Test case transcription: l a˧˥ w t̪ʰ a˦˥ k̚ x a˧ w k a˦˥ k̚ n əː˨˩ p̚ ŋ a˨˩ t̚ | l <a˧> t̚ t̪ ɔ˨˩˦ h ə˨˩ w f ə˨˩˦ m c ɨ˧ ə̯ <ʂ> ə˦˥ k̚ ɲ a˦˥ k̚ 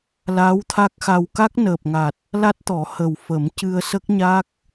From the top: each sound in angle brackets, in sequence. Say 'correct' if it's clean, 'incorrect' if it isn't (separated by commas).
incorrect, incorrect